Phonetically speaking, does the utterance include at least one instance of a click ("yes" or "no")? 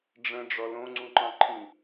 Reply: yes